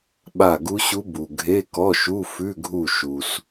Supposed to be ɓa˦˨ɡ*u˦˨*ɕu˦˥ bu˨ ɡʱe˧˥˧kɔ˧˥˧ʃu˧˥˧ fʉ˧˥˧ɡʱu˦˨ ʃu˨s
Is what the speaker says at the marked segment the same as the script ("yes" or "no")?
no